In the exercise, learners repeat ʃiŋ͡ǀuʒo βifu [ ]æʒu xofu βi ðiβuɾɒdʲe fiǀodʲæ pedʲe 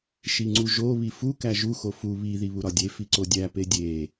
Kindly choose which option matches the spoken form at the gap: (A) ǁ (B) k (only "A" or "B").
B